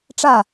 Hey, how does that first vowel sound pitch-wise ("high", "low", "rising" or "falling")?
falling